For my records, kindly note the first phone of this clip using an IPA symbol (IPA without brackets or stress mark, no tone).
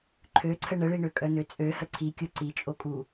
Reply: ǃʰ